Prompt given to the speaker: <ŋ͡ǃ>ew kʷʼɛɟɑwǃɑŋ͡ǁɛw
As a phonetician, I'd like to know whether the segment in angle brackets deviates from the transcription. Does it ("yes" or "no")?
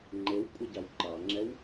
no